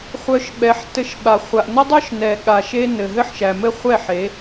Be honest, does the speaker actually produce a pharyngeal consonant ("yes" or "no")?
yes